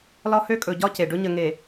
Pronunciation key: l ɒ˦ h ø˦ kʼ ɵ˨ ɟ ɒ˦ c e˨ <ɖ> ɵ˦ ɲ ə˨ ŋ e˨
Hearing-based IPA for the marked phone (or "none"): ɖ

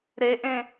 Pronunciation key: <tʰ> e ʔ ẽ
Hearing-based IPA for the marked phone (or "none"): ɾ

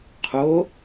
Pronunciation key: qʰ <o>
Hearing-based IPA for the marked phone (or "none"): o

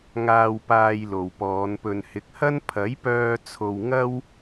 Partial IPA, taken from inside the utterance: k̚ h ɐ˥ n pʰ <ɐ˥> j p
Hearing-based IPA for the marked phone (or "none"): ɐ˨˥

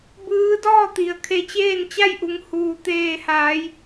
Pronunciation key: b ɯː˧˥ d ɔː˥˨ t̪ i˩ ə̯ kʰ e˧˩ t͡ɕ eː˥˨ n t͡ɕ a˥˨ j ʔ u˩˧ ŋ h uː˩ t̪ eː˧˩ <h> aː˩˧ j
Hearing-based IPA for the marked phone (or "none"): h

